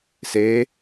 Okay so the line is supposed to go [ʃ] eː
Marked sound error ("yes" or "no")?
yes